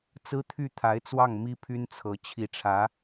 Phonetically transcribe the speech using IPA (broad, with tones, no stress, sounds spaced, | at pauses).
t͡s ɹ̩˥ t̪ʰ y˥˩ t̪ʰ a˧˥ ɪ̯ t͡s w ɑ˥˩ ŋ m i˥ pʰ y˥ n t͡sʰ ɤ˧˥ t͡ɕʰ i˧˥ ʈ͡ʂʰ ä˧˥